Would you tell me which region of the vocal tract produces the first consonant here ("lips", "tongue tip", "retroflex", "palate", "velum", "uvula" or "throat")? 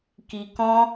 velum